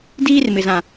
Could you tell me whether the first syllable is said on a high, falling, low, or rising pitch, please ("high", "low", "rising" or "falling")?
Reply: high